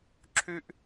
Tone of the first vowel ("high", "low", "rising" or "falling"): high